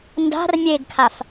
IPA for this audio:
n d a̤ r mʲ e ɡ kʰ a f

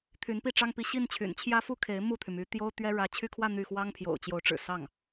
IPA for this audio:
t̪ʰ y˧˥ n p i˥˩ ʈ͡ʂ ɑ˥ ŋ p i˧˥ ɕ i˥˩ n t͡ɕʰ y̰˨˩ n t͡ɕʰ j ä˥ f u˥˩ kʰ e˧˥ ɪ̯ m u˥˩ t̪ʰ y˩ m y˧˥ t̪ j o˥ ʊ̯ t̪ ɥ ɛ˥ ɻ ä˧˥ t͡ɕʰ y˥ kʰ w ä˥˧ n̪ y˥˩ x w ɑ˥ ŋ pʰ j o̰˨˩ ʊ̯ t͡ɕ j o˧˥ ʊ̯ ʈ͡ʂ ɻ̩˨˩ s ɑ˥˩ ŋ

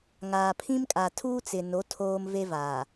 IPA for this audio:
ŋ aː˨ pʰ ĩ˦ m kʼ a˨ tʰ uː˦ t͡s ɪ˨ n o˨˦ tʰ oː˦ m v e˦ v aː˨

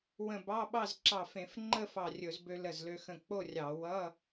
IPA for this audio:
w ə̃˧˩ b ɑ˧˥˧ ɓ ɑ˥˨ z ǁ ɑ˧˩ f ẽ˧˩˧ f ŋ͡ǃ ə˥˨ f ɑ˧˩ rʲ ɵ˧˩˧ z b ø˧ l ə˧˩ z l ø˧ x ə̃˧˩ k͡p o˥˨ rʲ ɑ˧˩˧ w ʌ˧˥˧

